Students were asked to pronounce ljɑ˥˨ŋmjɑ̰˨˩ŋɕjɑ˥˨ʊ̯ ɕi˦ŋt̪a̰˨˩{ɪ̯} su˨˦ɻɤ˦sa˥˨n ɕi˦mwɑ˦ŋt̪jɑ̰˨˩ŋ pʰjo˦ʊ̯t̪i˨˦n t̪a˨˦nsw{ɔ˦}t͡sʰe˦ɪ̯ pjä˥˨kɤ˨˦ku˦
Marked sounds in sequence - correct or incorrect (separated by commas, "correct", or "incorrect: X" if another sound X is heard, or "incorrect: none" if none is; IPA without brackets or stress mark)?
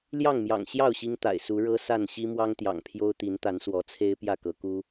correct, incorrect: ɔ˨˦